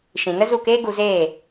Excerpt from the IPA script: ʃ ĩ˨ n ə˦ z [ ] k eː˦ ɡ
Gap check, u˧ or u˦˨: u˦˨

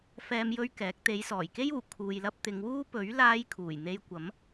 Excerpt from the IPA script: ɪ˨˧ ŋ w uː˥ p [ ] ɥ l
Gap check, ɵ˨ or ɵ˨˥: ɵ˨˥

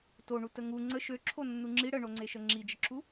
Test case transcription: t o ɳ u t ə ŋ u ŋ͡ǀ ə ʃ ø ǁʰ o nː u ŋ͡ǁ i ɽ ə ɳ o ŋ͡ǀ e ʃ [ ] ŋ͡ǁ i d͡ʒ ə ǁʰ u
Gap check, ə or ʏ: ə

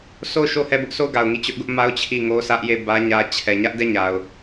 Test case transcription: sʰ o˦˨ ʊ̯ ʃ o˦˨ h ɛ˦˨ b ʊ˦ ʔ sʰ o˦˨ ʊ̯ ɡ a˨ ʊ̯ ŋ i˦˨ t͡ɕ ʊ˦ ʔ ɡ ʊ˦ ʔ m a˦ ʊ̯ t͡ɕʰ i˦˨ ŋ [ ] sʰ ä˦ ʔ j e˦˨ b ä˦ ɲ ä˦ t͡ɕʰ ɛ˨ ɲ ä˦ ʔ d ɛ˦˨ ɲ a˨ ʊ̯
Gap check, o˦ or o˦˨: o˦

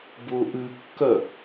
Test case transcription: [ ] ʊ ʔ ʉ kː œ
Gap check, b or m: b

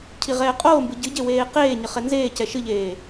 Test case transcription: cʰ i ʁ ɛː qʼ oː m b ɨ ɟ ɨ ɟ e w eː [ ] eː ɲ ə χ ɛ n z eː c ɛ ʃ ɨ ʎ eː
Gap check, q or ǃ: q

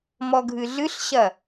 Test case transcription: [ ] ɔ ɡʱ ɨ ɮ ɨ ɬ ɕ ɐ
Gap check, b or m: m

